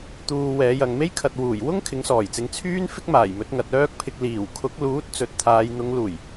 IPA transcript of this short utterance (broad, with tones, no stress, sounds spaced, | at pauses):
t̪ uː˨ w ɛː˨˧ j ɐ˨ ŋ m e˥ j kʰ ɐ˨ t̚ w uː˨˩ j w ʊ˥ ŋ kʰ ɪ˨˥ ŋ s ɔː˨˩ j t͡s ɪ˨˥ ŋ t͡sʰ yː˥ n f ɪ˥ k̚ m aː˨˩ j m ɵ˨˥ t̚ ŋ ɐ˨ t̚ œː˥ k̚ pʰ ɪ˧ k̚ l iː˨˩ w kʰ ʊ˨˥ k̚ l uː˨˥ t̚ t͡s ɵ˨ t̚ t̪ʰ aː˨˧ j n̪ ʊ˨˧ ŋ l uː˨˩ j